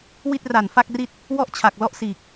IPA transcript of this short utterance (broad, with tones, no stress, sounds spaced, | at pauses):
w i˥˩ t̚ r a˨˩ n f a˥˩ k̚ r i˥˩ t̚ | w ɔ˥˩ ʔ t͡ɕʰ a˨˩ k̚ l ɔ˥˩ ʔ s iː˨˩ k̚